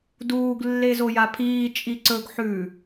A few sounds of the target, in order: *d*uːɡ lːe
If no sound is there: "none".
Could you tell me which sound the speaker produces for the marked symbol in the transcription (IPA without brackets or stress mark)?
d